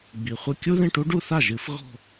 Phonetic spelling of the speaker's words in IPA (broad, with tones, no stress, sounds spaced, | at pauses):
ɡ͡b i˨˩ χʷ ɘ˥˧ kʲ u˥ ð ĩ˥˧ ʈ u˥ ɖ u˥˧ θ a˥˩ ʒ ɨ˧˩˧ f ɣ ɔ̤˥˧